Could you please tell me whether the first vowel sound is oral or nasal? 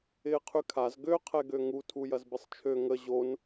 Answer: oral